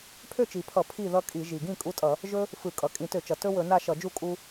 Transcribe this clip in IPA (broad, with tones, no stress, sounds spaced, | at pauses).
pʰ ø˥˨ t͡ʃ i˨˩ pʰ ʌ˧˩˧ pʰ i˥˨ ð ʌ˦ kʼ i˧˩˧ ʒ i˨˩ ɡ ĩ˥˨ kʼ u˦ tʼ ʌ˧˩˧ | ʒ ɵ˦ | f ɯ˧˩˧ kʼ ʌ˨˩ kʼ ĩ˧˩˧ t ø˧˩˧ t͡ʃ ʌ˨˩ t ɵ˦ w ɵ˧˩˧ n a˥˨ ʃ ʌ˧˩˧ d͡ʒ u˥˨ kʼ u˦